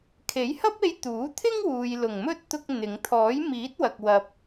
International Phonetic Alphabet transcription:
kʰe˨˥jhɐ˥p̚e˧j t̪uː˨˥t̪ʰɪ˥ŋwuː˨j lʊ˨˩ŋmɵ˥t̚ t̪ʊ˧k̚ n̪ɪ˨˧ŋ t̪ʰɔː˨˥jmiː˨˥t̚wɐ˨k̚ wɐ˧p̚

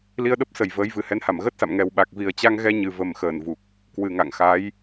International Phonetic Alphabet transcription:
li˧ə̯ɗə˦˥p̚sə˨˩j vəː˨˦jvɨ˨˩ hɛ˨˦nha˧˩mɣəː˦˥t̚sa̰˧˨m ŋɛ˨˩wɓa˨˩k̚ vi˨˩ə̯t͡ɕa˧ŋɣɛ˧ ɲɨ˨˩və˨˩mxəː˧˩nvu˨˩k̚ | kwɨ˨˩ŋa̰˧˨ŋxa˨˦j

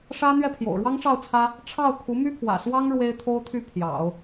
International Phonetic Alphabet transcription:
ʂä˥ n̪ɥɛ˥˩pʰjo̰˨˩ʊ̯ɻwɑ˥ŋʈ͡ʂɑ˥˩ʊ̯ t͡sʰä˥ | ʈ͡ʂʰɑ˥˩ʊ̯ kʰu˧˥my˥pʰwä̰˨˩ swɑ˥ŋ ɻwe˥ɪ̯t̪ʰo˥ʊ̯t̪ʰy˥˩ pʰjɑ̰˨˩˦ʊ̯

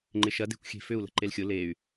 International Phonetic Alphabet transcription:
ŋ͡ǃɪʃɐde̤kʷ xʲe̤fʏu̯lə̤ ǃelxʲʊ ley̯

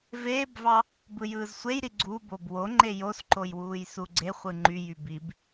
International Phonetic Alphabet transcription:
veːbvɑ | bɯjɯːzsʷejɾi ɡ͡ǀubob woŋ͡ǃe josǃojwuːjsu ɡ͡ǀe χʷɯŋ͡ǃy jybib

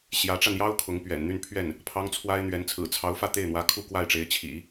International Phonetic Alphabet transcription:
ɕjä˧˥ʈ͡ʂa˧njɑ˥ʊ̯ kʰʊ˧˥ŋpɥɛ̰˨˩n n̪y˥˧npʰɥɛ˥˩n | pʰɑ˥ŋt͡sʰwa˥ɪ̯ n̪ɥɛ˧˥n t͡sʰɹ̩˨˩t͡sʰɑ˧˥ʊ̯fä˥˧ t̪e˥˩ɪ̯n̪wä˧˥ kʰu˥˧kwa˥˩ɪ̯ʈ͡ʂe˧˥ɪ̯ t͡ɕʰḭ˨˩˦

